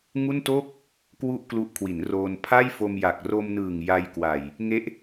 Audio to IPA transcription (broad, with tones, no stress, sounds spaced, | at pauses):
ŋ u˥˩ n t o˥˩ k̚ | k w u˥˩ ʔ k l u˦˥ ʔ kʰ w i˩˦ n r oː˧ n pʰ a˥˩ j f o˧ m j a˨˩ k̚ r o˧ m n ɯː˨˩ ŋ j a˧ j k w a˨˩ j | ŋ e˦˥ ʔ